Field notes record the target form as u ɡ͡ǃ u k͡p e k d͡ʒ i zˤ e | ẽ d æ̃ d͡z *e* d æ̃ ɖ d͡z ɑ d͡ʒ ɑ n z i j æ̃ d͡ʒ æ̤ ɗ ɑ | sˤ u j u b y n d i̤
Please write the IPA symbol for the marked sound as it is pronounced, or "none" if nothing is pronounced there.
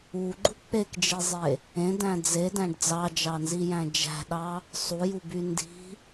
e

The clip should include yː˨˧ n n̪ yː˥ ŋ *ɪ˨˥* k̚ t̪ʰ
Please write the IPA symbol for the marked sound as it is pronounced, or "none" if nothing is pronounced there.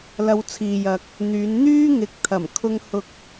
ɪ˨˥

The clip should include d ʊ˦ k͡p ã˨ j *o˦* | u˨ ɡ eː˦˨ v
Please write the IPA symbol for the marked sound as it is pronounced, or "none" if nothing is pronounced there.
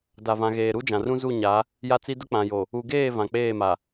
o˨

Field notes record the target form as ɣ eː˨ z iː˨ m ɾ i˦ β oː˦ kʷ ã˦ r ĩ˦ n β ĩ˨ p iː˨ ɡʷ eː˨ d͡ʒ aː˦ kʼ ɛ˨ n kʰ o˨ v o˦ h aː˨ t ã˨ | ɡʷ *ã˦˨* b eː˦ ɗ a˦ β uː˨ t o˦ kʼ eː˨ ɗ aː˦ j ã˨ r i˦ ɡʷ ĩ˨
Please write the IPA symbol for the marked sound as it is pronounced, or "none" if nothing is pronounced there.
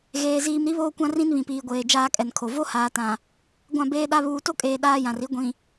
ã˦˨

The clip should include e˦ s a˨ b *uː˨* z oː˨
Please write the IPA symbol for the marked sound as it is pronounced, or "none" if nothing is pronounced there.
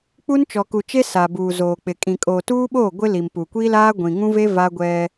uː˨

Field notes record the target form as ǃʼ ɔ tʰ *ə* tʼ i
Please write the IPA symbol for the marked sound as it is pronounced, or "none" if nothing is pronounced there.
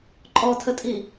ə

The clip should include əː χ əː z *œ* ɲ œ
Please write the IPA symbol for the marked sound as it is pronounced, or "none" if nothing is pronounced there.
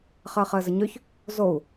ə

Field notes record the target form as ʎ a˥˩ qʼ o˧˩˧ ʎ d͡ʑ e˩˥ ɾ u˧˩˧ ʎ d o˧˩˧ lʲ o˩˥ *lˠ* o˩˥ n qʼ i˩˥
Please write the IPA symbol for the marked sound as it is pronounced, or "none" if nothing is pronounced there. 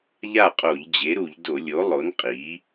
lˠ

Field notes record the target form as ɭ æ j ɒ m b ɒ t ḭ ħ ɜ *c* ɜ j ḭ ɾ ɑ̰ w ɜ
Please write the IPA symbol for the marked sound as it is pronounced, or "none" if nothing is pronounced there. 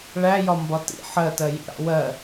t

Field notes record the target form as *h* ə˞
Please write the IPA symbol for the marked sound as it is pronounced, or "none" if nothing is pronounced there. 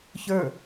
ç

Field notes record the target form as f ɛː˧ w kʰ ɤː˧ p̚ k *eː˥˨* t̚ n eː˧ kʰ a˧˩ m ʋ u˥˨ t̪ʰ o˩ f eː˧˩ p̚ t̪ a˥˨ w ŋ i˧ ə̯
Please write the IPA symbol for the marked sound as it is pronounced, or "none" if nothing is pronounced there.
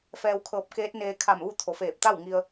eː˧˥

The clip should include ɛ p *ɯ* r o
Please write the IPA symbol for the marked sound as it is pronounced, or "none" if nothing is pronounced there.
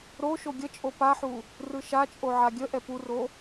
u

